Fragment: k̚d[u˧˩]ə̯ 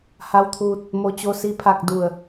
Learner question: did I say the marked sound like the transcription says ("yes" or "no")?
yes